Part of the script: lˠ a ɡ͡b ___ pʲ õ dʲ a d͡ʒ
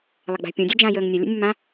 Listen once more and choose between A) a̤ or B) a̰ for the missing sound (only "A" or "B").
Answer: A